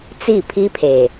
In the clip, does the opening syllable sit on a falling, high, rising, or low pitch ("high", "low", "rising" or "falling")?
falling